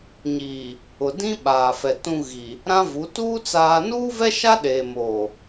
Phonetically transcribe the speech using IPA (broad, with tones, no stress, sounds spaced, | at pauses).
ɲ iː˨ | ʊ˨ d ĩ˦ ɓ aː˨ f ɛ˨ t ũ˦ ɣ i˨ | ɾ ã˦ v u˨˦ t uː˦ t͡s aː˦ n uː˦ v ɛ˦ ʃ a˦ ɗ eː˨ m oː˨